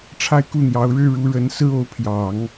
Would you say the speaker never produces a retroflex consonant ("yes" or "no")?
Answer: no